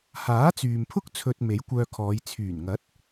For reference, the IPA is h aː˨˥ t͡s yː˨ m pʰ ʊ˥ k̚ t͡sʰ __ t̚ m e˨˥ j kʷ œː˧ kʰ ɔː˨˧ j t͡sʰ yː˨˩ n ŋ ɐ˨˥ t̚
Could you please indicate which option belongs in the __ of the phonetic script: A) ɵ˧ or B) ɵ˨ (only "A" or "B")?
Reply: A